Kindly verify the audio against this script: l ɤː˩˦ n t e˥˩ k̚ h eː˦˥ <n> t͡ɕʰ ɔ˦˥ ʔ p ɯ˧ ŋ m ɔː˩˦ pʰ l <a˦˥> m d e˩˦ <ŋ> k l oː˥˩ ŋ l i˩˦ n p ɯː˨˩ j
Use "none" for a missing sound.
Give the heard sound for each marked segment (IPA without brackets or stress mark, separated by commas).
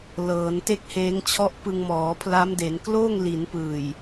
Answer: ŋ, a˦˥, n